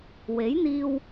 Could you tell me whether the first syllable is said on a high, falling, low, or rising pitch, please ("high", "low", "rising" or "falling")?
rising